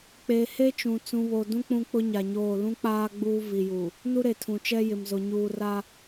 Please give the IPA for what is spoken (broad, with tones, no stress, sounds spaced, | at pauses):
k͡p eː˨ h e˦ t͡ʃ ũ˨ t͡s ũ˨ β o˨ d ũ˦ k͡p ũ˦ k͡p ʊ˦ ɲ a˨ ɲ oː˦˨ l ũ˦ k͡p aː˦ ɡ͡b uː˦ v i˨ j u˨ | n u˦ ɾ e˨ tʰ ũ˨ t͡ʃ ɛ˦ j ɪ˨ m z o˨ ɲ uː˨ r a˦